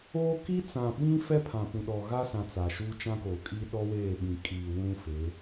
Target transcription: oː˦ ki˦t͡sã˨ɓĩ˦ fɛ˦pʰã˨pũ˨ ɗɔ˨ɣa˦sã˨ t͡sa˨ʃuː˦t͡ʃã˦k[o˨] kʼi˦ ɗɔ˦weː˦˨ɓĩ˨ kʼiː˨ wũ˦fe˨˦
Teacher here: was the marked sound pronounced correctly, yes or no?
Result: no